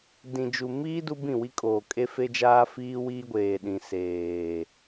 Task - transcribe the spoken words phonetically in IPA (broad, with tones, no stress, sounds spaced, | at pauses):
d ĩ˨ d͡ʒ u˨ m iː˦ d u˦ b ĩ˦˨ w i˦ kʼ oː˨ kʼ e˦ f e˦ d͡ʒ aː˦ f iː˦ w iː˦ ɡʷ eː˨ ɗ ĩ˨ s eː˨